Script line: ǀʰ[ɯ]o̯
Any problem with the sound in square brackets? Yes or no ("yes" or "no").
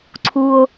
yes